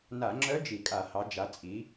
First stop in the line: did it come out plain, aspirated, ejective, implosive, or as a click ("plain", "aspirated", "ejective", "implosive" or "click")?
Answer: click